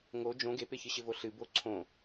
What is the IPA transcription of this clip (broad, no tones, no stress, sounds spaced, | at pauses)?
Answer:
ŋ o d͡ʒ õ ɡ e p ɪ ç ɨ ɕ ɪ v o ɬ ɨ b o ǀʰ õ